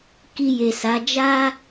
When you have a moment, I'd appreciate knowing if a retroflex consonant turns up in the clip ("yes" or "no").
no